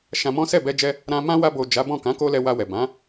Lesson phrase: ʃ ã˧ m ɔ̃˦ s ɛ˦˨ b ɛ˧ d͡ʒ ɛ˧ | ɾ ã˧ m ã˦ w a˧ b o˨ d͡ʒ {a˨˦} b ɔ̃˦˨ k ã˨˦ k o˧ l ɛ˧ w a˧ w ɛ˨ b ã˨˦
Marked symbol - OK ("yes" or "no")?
yes